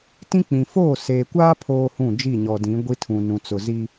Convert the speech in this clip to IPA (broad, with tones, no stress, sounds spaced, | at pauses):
t ĩ˦ k͡p ĩ˨ f oː˦˨ s eː˨ kʷ aː˦ pʰ oː˦ h ũ˦˨ d͡ʒ i˦˨ ɲ ɔ˨ d ĩ˨˦ ɡʷ i˦ tʰ ũ˨ n ũ˨ t͡s ʊ˨ z i˦